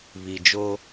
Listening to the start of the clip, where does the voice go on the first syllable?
low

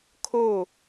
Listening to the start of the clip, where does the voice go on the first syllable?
falling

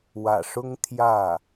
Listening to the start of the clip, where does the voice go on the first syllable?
low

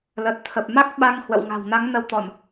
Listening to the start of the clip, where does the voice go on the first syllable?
low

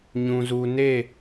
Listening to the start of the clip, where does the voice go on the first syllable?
low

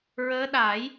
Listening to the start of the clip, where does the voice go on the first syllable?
rising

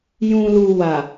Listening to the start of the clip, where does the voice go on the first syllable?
low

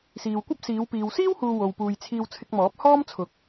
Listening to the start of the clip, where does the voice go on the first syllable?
low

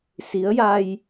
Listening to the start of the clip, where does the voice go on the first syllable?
rising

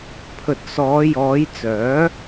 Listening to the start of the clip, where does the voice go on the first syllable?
low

